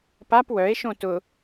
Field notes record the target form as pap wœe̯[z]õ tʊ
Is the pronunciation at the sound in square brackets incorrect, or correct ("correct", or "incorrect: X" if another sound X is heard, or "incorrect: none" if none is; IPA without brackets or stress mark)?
incorrect: ʃ